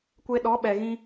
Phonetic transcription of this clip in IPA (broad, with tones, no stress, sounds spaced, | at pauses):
kʷ e˦ ɗ ɔ˨˦ ɓ ɛ˨ ɣ ĩ˧